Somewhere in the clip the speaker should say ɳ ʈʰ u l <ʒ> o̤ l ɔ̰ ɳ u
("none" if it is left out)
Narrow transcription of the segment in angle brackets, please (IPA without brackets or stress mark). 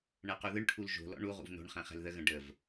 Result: ʒ